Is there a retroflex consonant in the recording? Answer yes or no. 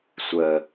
no